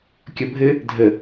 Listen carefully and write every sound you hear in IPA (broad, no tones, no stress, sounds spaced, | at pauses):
kʲ ʌ bʱ ɘ | dʱ ə